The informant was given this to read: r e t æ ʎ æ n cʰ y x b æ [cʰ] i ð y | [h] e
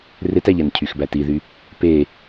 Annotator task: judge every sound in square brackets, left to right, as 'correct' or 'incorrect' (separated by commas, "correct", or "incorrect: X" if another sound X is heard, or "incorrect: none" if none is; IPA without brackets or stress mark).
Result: incorrect: t, incorrect: p